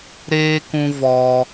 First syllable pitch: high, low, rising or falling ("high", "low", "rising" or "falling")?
high